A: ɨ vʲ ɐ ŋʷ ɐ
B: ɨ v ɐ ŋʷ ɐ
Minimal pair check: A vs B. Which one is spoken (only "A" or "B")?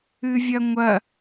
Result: A